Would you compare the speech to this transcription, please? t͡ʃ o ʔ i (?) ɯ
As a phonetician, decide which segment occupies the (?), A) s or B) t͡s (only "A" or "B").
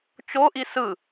A